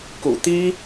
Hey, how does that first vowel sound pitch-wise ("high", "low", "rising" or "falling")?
low